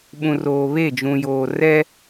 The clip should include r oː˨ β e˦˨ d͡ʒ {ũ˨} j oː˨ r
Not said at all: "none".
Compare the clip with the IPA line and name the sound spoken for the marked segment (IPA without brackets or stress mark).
ũ˨